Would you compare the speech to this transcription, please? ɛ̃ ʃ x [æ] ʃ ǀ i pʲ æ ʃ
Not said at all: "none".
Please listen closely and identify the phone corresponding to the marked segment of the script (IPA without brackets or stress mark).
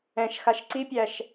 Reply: a